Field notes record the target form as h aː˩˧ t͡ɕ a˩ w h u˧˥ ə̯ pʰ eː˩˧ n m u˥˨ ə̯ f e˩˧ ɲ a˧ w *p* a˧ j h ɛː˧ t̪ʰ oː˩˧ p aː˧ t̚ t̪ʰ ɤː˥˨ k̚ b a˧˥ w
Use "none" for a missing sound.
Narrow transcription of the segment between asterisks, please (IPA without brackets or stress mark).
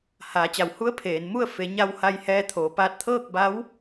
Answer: h